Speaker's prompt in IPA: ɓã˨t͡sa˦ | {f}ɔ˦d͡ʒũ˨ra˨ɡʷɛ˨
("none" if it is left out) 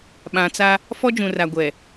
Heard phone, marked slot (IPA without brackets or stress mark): f